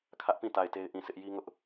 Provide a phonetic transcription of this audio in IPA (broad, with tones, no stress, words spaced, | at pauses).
kʰä˦ʔpĩ˦˨ ta˦˨ɪ̯te˦ɪ̯ʔĩ˦˨sʰɪ˦ʔ ji˦ŋʊ˦ʔ